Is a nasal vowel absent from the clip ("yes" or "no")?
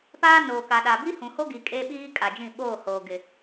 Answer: no